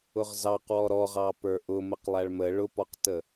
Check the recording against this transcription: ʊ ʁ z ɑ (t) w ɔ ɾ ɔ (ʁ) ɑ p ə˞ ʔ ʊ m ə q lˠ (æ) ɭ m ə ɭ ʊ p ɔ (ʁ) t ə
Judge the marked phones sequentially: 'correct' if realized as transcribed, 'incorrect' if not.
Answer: incorrect, correct, correct, incorrect

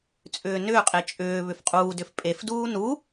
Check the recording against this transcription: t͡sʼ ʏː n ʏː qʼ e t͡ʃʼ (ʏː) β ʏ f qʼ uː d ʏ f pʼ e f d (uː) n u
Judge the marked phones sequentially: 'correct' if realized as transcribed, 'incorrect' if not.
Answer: correct, correct

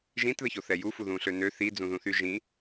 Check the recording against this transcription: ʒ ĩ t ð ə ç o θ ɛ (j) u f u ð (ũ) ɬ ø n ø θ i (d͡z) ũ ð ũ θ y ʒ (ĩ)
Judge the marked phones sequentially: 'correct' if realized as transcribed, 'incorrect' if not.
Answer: correct, correct, correct, correct

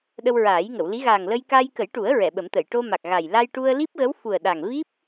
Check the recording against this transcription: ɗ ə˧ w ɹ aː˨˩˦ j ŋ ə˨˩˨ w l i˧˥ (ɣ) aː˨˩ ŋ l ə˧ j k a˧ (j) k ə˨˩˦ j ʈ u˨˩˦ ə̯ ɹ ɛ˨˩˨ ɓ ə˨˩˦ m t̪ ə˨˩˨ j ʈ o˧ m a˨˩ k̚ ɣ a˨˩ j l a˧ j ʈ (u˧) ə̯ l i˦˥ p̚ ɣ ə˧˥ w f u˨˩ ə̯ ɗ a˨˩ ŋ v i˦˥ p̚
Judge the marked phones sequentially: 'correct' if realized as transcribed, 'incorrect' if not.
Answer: correct, correct, correct

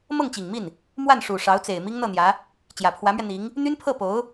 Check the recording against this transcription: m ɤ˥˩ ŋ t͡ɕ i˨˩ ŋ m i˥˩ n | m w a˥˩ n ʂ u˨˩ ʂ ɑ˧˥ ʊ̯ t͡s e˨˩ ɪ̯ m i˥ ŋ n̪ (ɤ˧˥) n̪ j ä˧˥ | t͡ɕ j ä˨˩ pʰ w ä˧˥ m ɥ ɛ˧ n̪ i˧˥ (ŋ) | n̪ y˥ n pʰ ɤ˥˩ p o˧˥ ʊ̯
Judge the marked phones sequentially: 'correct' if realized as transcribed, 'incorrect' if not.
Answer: incorrect, correct

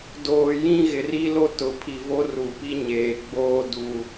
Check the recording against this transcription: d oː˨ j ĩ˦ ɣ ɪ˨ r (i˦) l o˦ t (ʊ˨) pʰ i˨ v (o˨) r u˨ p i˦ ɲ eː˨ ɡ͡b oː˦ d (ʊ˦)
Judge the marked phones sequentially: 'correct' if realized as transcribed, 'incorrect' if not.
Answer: correct, correct, incorrect, incorrect

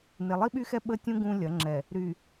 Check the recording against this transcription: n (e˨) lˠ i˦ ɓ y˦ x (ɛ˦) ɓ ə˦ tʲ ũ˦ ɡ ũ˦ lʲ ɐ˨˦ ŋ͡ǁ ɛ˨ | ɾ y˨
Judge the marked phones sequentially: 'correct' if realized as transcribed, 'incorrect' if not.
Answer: correct, correct

